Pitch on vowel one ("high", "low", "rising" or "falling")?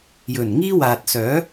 low